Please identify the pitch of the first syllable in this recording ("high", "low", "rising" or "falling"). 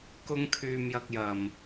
high